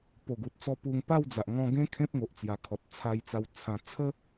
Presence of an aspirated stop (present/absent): present